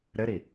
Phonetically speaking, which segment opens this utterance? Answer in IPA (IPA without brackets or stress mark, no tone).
ɾ